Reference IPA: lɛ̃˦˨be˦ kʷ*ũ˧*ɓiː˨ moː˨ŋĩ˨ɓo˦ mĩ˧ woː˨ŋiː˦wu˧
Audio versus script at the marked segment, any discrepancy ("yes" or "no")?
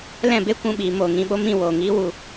no